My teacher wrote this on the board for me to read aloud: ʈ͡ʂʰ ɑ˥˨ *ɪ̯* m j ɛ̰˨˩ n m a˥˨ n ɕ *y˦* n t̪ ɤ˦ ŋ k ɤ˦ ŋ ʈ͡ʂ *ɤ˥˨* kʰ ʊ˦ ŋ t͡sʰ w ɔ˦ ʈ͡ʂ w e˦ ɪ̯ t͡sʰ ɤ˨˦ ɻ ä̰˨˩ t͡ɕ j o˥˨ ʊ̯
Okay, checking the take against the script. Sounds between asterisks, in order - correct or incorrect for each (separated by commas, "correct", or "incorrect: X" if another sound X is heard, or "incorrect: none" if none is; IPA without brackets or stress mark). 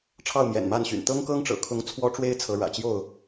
incorrect: ʊ̯, incorrect: y̰˨˩, incorrect: ɤ̰˨˩